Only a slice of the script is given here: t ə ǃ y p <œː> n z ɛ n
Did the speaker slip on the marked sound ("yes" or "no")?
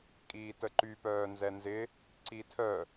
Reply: no